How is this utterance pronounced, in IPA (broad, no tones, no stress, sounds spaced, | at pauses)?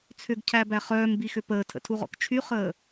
t͡sʰ ʏ ɡ cʰ æ b æ χ œː m b i x ʏ p əː tʰ ə̰ tʰ u ʁ ɔ̰ k t͡ʃʰ y χ əː